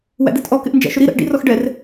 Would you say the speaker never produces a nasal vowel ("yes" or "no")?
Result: yes